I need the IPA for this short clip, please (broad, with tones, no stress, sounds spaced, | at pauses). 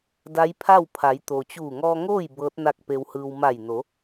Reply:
d a˧˥ j pʰ a˥˨ w pʰ a˩˧ j t̪ o˩ t͡ɕ uː˧˩ ŋ ɔː˧ ŋ oː˥˨ j b ɤː˧˥ t̚ n a˥˨ k̚ p e˧ w h ɯː˧ w m a˧˩ j n o˩˧